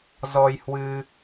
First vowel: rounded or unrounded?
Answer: rounded